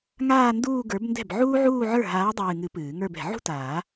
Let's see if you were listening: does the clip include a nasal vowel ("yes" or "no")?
no